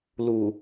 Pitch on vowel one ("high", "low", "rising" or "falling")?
low